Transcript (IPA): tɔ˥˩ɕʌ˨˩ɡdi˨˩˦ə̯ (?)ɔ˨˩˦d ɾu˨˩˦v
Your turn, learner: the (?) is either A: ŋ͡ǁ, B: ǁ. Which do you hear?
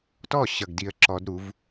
B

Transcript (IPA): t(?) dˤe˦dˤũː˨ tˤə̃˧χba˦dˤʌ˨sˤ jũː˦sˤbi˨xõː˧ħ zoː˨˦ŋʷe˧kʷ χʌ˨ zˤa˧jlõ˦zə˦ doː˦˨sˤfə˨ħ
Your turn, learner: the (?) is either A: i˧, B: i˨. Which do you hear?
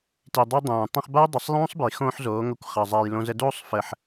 B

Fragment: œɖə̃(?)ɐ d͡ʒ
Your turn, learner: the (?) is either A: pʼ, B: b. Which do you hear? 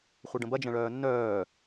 B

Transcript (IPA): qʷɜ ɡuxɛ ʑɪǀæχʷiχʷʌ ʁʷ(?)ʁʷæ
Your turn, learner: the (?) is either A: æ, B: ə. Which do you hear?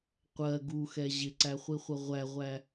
A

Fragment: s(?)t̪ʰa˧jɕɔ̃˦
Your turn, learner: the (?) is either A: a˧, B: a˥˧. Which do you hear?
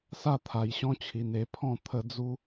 B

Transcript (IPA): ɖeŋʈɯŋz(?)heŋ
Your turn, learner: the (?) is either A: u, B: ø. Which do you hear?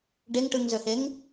B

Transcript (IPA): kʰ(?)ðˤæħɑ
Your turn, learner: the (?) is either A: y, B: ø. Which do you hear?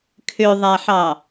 B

